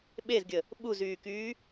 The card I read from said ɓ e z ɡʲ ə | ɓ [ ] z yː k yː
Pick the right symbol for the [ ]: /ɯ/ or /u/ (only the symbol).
u